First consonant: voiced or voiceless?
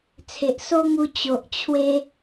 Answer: voiceless